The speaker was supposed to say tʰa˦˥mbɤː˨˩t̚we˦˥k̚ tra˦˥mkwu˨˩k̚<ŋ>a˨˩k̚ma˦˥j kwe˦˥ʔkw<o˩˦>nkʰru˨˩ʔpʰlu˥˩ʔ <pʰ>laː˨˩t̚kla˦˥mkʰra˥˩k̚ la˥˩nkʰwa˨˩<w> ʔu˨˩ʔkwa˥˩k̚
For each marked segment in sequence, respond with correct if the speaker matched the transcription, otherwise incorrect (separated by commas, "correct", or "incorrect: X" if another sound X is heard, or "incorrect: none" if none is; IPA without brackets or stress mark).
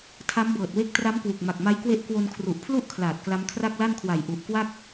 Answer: incorrect: m, incorrect: o˧, incorrect: kʰ, incorrect: j